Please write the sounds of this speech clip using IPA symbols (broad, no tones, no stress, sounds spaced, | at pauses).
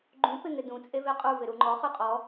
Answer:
ɡ͡ǃ ũ p ɪ ŋ ɪ d ũ t͡sʼ e v e qʼ u v ɪ ɾ u ŋ͡ǃ ɔ χ y qʼ ɔ